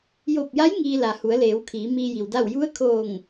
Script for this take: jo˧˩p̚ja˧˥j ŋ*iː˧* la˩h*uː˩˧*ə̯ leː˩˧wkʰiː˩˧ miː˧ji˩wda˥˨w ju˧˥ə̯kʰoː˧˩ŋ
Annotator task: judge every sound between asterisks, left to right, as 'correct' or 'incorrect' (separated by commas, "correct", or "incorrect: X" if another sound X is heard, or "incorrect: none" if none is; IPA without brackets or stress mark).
correct, incorrect: u˩˧